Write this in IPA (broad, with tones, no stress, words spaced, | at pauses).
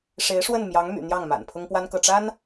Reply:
ʂe˧˥ɪ̯ʂwə˥˩nmjɑ˧˥ŋmy̰˨˩ n̪jɑ˥˩ŋma̰˨˩n pʰʊ˥ŋpwa˥nkɤ˥˩ ʈ͡ʂa˥n